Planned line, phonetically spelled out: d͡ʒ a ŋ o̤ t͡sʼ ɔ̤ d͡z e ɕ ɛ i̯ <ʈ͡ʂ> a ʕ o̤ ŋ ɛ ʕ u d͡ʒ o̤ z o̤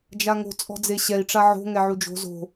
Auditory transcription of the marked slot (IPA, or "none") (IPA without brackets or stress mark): ʈ͡ʂ